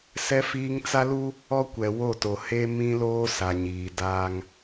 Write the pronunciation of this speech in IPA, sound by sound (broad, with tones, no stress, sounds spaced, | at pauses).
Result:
s ɛ˦ f iː˦ ŋ t͡s a˦ l u˦ | ɔ˦ kʷ ɛ˨ w o˦˨ t o˨ h e˦ m ĩ˦ l oː˦ s a˨ ɲ iː˨ d aː˦ ŋ